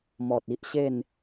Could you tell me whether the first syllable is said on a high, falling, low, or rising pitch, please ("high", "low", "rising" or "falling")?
low